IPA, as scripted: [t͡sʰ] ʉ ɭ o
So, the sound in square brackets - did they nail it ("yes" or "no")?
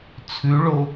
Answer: yes